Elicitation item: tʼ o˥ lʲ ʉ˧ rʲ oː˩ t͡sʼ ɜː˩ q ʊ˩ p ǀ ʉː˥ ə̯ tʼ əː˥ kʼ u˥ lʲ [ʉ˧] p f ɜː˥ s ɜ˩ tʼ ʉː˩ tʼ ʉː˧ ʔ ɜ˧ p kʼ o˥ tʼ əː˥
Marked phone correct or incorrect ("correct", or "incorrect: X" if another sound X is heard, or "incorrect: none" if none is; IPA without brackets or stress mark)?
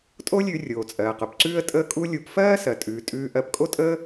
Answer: incorrect: u˧